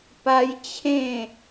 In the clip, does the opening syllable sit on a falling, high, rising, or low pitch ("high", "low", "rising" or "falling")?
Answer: high